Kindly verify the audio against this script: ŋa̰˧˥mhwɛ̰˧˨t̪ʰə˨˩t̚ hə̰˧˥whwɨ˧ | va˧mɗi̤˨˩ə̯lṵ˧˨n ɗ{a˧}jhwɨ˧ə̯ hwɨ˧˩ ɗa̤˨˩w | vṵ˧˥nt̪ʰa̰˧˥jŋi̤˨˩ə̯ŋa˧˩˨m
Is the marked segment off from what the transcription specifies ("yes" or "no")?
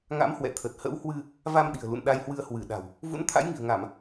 no